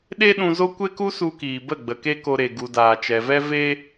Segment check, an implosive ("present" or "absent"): present